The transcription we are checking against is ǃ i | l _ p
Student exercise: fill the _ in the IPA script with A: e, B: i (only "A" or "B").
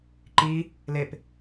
A